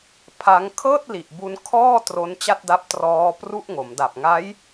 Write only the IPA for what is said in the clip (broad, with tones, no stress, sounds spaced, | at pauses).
pʰ a˦˥ ŋ kʰ ɤː˥˩ t̚ l i˨˩ ʔ b u˧ n kʰ ɔː˥˩ t r o˦˥ n t͡ɕ a˥˩ t̚ d a˦˥ p̚ t r ɔː˦˥ p r u˥˩ ʔ ŋ o˩˦ m d a˨˩ p̚ ŋ a˦˥ j